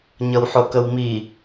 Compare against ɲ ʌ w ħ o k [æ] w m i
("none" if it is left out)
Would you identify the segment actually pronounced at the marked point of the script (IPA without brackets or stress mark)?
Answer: ə